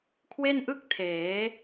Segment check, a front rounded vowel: absent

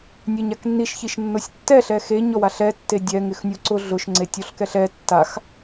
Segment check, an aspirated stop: absent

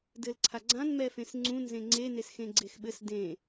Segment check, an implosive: present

